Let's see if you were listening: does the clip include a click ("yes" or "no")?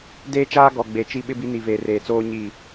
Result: no